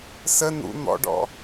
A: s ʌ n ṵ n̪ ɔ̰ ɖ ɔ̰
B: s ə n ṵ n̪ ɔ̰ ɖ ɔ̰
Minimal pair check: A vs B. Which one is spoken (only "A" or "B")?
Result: B